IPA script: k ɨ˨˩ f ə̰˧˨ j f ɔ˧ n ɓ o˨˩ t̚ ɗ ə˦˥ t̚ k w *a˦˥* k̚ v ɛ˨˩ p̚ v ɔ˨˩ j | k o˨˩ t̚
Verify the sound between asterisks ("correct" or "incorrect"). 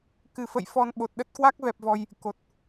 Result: correct